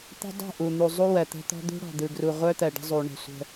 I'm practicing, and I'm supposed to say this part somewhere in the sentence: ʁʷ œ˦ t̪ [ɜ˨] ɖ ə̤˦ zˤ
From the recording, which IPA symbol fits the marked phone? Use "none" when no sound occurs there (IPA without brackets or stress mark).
ɜ˨